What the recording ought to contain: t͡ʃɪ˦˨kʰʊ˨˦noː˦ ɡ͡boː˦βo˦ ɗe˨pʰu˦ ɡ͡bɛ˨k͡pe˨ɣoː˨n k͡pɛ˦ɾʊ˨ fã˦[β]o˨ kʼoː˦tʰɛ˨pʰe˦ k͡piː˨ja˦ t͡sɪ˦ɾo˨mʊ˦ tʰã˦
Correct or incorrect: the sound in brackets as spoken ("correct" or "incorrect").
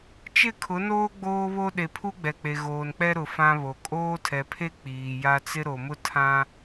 correct